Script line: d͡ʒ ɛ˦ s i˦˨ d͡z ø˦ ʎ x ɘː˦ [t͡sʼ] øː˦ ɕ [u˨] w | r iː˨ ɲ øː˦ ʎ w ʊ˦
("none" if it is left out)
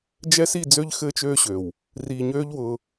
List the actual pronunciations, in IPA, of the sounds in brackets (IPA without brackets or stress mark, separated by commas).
t͡ʃ, ø˨